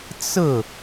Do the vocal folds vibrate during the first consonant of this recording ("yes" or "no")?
no